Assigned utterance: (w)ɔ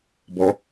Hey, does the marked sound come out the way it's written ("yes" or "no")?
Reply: no